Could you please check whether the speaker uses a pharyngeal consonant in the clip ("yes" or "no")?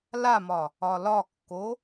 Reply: no